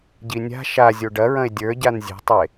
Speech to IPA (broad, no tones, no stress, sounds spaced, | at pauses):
ɟ i nʲ a̤ ʃ a zʲ o ɖ ɐ ɹ ɐ̃ e̯ dʲ ə˞ ɟ a n zʲ e̤ tˤ e